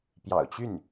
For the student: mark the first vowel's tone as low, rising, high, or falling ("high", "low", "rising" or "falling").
low